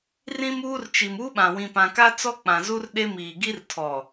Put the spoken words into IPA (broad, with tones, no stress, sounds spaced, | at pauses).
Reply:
r ĩ˦ m uː˦ r t͡ʃ i˨ m u˦ ɓ ã˨ w ĩ˨ p ã˨ k a˦ t͡s ɔ˦ k͡p ã˨ z u˦ r ɗ e˦ m iː˨ ɡ i˦ r tʰ ɔ˨